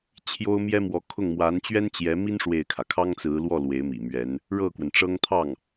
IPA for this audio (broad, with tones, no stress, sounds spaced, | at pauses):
t͡ɕʰ j o˥ ʊ̯ m j ɛ˥ m w ɔ˧˥ kʰ ʊ˥˩ ŋ m w a˧˥ n t͡ɕ ɥ ɛ˥ n t͡ɕ j ɛ˧˥ m i˥ n ʂ w e˥˩ ɪ̯ kʰ ä˩ kʰ ɑ˥ ŋ t͡s ɹ̩˧˥ l w ɔ˥˩ l w e˧˥ ɪ̯ m ḭ˨˩ m ɥ ɛ˧˥ n | ɻ ɤ˥˩ k w ə˩ n ʈ͡ʂ ɤ˥ ŋ t̪ʰ ɑ˥˩ ŋ